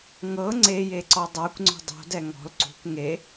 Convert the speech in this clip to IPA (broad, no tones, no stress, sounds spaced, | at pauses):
ŋ ɤ ŋ͡ǀ e j e ǀ ɔ dˤ a kʷ ŋ͡ǀ o̤ dˤ o̤ d ɛ ŋ ɔ̤ l ǀ ṳ kʷ ŋ e